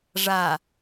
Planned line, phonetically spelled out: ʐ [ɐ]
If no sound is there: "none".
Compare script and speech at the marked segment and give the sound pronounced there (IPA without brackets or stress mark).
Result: a